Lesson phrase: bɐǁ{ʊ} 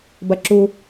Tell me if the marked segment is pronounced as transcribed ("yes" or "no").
no